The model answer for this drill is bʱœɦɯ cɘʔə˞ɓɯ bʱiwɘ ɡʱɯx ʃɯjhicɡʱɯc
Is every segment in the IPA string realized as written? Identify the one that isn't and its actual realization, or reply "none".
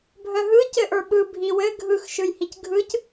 none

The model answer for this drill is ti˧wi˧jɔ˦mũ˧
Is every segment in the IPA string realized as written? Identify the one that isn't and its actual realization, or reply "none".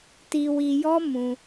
none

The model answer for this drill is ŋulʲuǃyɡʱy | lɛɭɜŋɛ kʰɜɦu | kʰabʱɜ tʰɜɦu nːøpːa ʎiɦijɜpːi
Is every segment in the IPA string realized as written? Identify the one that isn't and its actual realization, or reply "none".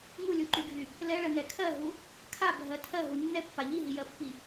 ø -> ɛ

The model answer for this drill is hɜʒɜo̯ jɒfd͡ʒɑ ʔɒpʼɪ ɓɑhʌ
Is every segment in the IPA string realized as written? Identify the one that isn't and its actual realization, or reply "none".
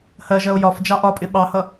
none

